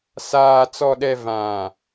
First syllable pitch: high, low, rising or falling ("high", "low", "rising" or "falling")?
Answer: low